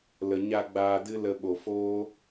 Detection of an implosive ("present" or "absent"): present